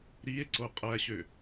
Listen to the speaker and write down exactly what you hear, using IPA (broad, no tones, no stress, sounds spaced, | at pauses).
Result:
ɾ i e̯ ǀ o qʼ æ ɕ ø